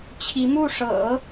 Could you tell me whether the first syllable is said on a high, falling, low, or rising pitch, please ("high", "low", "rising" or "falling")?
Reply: rising